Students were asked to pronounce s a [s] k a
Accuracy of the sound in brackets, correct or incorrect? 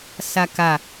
incorrect